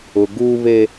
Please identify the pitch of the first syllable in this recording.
low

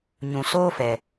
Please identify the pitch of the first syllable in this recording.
low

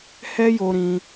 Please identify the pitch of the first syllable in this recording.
high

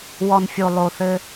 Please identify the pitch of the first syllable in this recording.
low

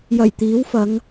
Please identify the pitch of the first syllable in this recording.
low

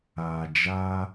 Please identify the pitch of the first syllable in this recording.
low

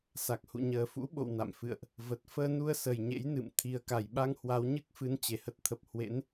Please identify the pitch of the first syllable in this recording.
low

